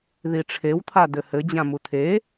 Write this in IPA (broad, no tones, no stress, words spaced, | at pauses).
ðiʈ͡ʂʰewt̪ʰa d̪ɘhɘd͡ʑã mut̪ʰe